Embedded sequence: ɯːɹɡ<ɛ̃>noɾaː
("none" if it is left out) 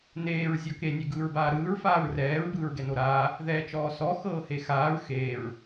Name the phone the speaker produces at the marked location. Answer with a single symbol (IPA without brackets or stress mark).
ɛ